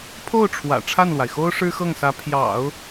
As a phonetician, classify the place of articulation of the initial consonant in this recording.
labial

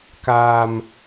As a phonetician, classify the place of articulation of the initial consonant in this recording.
velar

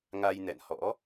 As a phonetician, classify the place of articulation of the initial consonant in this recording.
velar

